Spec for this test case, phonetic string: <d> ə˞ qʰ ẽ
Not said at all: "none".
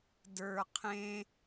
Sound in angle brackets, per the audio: d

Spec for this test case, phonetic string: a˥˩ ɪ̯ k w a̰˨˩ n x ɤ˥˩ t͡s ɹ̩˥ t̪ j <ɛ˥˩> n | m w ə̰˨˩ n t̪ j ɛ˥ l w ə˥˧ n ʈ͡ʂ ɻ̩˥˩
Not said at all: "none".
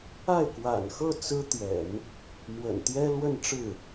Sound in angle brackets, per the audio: ɛ̰˨˩˦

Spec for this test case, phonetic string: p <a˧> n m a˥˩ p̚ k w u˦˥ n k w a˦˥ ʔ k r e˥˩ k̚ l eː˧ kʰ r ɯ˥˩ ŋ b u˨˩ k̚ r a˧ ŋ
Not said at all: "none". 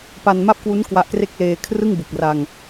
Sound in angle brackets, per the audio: a˧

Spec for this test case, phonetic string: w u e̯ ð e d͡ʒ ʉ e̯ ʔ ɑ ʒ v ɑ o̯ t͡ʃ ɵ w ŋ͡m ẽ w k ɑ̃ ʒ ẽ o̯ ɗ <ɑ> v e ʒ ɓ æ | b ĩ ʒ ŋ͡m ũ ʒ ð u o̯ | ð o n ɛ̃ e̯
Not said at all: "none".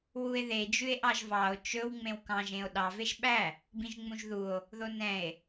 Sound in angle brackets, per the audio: ɑ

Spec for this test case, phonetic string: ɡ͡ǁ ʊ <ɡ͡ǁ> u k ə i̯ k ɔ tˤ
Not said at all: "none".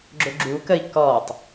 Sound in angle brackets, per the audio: ɡ͡ǁ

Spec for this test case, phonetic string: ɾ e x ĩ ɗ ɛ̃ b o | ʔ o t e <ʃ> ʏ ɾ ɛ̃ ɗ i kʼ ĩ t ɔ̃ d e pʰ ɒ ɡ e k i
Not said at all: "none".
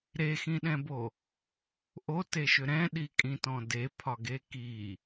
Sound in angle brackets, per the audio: ʃ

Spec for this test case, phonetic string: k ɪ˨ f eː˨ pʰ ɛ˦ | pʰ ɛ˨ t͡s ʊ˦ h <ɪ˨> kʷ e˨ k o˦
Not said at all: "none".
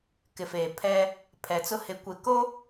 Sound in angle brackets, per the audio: ɪ˨˦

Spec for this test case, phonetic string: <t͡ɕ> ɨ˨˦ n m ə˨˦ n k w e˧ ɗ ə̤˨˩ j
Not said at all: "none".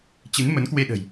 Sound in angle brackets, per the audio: t͡ɕ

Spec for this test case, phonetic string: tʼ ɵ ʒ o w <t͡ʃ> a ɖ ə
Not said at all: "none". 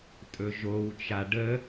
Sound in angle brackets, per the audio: t͡ʃ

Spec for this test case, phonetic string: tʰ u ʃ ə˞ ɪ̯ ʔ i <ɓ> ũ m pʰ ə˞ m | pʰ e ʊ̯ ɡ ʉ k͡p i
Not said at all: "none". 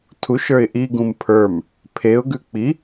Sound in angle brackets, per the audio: ɡ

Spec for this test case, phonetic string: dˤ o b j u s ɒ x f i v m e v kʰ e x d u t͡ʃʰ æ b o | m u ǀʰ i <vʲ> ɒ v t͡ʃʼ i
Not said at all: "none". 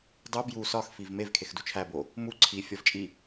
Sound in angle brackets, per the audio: fʲ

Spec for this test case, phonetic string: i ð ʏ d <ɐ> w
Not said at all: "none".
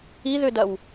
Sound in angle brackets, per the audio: ɐ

